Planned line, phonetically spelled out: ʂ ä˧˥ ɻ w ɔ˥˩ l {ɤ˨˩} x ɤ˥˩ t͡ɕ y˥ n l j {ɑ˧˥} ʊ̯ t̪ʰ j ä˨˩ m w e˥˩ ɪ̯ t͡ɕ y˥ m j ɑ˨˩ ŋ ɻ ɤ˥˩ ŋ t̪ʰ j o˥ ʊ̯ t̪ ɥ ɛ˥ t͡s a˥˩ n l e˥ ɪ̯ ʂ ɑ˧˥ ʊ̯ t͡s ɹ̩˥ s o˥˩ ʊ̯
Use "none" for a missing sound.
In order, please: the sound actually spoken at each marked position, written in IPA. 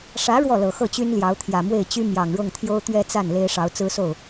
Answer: ɤ˨˩, ɑ˧˥

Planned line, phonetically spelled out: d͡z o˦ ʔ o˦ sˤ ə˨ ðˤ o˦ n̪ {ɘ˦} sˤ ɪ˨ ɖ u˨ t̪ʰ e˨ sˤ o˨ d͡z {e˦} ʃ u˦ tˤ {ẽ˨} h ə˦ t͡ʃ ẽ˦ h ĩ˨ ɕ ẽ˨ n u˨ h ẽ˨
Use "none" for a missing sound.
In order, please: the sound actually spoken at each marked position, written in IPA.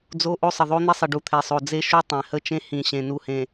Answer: e˦, e˦, ẽ˨

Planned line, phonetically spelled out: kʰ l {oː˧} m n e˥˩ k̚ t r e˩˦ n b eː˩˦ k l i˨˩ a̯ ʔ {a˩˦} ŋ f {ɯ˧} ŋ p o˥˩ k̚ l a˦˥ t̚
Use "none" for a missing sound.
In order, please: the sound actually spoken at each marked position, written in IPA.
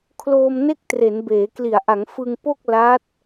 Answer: oː˧, a˩˦, ɯ˧

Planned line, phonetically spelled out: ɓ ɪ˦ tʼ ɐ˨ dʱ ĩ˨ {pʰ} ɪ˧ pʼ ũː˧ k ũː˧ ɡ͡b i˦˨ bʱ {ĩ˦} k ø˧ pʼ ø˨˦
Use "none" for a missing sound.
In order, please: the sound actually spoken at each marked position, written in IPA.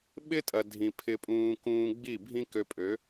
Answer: pʰ, ĩ˦

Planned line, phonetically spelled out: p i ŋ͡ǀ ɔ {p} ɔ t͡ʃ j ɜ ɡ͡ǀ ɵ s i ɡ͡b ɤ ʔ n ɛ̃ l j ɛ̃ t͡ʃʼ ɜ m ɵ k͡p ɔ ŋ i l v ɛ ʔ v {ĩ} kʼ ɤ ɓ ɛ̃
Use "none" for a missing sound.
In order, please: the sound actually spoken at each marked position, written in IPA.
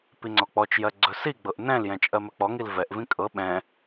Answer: k͡p, ĩ

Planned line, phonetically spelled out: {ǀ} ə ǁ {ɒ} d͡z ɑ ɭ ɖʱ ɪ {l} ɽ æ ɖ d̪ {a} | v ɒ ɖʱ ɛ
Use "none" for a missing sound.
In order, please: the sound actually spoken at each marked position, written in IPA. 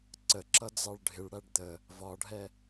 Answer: ǀ, ʌ, ɭ, ə

